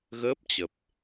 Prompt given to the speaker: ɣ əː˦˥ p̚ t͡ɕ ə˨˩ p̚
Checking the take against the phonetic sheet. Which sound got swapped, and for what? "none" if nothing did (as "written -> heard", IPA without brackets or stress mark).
none